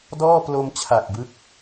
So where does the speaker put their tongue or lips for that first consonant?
tongue tip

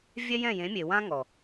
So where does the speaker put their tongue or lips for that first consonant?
lips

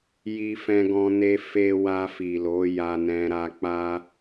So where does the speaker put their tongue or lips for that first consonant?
palate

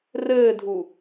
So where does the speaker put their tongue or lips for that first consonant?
tongue tip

